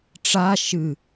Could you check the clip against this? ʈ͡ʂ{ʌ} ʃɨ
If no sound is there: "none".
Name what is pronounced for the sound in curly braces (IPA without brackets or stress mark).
a